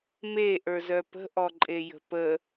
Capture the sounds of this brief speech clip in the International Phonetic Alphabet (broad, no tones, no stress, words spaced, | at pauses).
me ʔə˞zœpə̤ ʔɔǃʼejə̤pə